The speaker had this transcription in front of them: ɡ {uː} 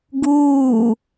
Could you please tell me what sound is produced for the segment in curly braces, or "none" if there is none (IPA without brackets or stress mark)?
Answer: uː